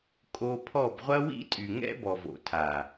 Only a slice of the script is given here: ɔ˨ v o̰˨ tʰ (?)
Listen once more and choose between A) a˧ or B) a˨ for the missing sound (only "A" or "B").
B